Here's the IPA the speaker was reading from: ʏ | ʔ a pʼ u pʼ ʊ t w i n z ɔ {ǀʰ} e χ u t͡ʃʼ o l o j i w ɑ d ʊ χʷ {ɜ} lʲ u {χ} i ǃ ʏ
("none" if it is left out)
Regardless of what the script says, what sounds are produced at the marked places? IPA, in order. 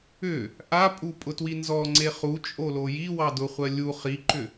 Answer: ŋ͡ǀ, ɜ, χ

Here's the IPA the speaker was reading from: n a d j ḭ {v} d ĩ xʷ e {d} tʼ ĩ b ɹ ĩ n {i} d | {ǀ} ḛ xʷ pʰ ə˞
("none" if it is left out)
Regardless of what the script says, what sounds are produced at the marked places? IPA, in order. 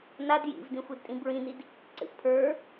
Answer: v, d, i, ǀ

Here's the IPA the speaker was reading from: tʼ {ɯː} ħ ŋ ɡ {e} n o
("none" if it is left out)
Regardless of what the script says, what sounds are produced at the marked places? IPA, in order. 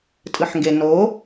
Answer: ɯ, e

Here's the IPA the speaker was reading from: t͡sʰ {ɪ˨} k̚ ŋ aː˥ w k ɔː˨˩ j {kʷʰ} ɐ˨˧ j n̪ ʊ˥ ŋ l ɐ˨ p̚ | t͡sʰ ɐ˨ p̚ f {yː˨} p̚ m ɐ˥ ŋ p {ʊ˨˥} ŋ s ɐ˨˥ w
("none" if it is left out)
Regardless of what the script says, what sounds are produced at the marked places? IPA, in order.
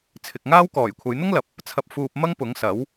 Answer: ɪ˨, kʷʰ, uː˨, ʊ˨˥

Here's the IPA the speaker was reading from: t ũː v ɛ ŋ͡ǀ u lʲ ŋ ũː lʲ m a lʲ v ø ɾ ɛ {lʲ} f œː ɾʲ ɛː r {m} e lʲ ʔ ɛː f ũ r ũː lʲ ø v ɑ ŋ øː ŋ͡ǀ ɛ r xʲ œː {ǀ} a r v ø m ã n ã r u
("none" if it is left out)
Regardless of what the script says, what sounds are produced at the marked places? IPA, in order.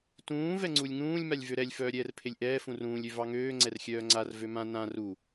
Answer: lʲ, pʰ, ŋ͡ǀ

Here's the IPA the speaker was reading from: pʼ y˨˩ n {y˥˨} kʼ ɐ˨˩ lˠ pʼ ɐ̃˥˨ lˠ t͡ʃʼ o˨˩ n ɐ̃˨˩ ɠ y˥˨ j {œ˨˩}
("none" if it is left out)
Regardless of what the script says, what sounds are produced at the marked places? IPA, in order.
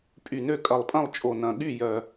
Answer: ø˥˨, œ˨˩

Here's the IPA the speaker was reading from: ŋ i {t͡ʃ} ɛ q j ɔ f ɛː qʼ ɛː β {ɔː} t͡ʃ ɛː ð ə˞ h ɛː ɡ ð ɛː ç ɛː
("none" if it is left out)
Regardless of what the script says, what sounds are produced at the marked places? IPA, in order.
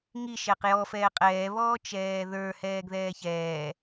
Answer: ʃ, ɔː

